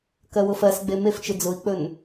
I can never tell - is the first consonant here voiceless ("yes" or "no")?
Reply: yes